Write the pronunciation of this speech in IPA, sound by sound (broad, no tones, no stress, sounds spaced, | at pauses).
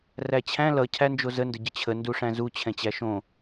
r æ t͡ɕʰ æ̃ l ʌ cʰ æ n d͡ʒ o z ə n d ə ɟ ə t͡ɕʰ ə n d u ʂ æ̃ z u t͡ɕʰ ɛ̃ t͡ɕ æ ʃ õ